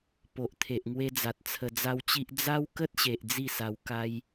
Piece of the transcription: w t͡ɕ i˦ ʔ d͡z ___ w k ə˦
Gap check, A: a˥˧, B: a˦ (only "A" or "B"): B